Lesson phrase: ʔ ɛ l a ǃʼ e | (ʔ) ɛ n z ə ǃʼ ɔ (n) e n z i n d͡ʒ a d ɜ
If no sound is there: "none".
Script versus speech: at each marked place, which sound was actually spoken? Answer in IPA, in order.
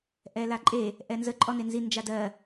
ʔ, n

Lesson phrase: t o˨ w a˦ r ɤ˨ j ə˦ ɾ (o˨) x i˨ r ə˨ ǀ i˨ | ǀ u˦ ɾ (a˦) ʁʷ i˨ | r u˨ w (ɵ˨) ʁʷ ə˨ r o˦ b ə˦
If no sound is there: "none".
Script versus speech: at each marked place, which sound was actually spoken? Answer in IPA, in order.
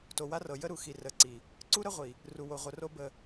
u˨, ə˦, o˨

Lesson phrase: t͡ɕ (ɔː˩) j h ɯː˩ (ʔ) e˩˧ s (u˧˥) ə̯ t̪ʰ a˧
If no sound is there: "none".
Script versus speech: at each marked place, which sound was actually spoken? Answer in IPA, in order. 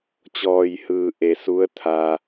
ɔː˩, ʔ, u˧˥

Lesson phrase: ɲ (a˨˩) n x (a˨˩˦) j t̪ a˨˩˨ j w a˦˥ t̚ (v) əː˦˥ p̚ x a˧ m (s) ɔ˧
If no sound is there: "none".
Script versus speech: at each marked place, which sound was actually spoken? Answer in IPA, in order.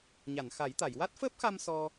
a˨˩˨, a˨˩˦, f, s

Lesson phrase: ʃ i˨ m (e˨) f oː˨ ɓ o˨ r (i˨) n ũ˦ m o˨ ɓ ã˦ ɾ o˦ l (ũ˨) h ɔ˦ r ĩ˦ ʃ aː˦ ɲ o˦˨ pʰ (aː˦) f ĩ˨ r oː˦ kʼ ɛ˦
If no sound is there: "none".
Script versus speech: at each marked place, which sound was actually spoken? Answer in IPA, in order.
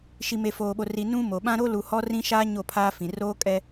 e˨, i˨, u˨, aː˦

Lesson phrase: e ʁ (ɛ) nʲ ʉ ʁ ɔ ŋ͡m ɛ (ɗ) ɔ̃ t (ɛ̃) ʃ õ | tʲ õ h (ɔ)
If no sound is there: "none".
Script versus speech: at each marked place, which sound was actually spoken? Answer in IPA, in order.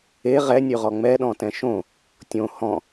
ɛ, ɗ, ɛ̃, ɔ̃

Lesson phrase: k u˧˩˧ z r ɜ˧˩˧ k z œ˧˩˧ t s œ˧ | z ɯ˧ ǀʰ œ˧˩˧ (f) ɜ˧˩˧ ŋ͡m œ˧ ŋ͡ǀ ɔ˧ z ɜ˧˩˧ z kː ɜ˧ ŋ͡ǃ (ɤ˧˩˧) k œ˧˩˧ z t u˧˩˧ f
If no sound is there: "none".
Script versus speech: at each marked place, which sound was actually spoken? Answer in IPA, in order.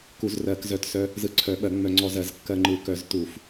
ɓ, ɯ˧˩˧

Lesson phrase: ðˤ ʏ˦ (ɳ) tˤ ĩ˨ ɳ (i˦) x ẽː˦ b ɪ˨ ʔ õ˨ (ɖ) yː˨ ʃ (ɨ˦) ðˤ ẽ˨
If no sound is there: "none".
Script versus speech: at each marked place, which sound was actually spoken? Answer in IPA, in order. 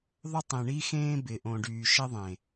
none, i˦, ɖ, ɪ˦

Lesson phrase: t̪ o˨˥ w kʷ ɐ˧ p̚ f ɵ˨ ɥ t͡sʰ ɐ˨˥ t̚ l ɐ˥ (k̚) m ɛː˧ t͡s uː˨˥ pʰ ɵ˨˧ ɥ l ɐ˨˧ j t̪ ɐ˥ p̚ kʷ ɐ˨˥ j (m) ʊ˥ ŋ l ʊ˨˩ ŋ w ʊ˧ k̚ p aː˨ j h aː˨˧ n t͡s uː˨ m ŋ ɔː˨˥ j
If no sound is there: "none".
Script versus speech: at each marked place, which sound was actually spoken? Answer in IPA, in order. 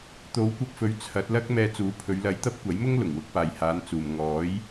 k̚, m

